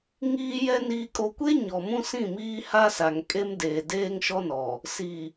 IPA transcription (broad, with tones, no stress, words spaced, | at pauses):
ŋiː˦jɛ˦ niː˦kʼo˦ kʷe˦ ɲɔ˨mũ˦sĩ˦˨miː˦ ha˦sa˨ŋkʼe˦mdeː˨ deː˦ŋʃɔ˦nɔ˨ | si˨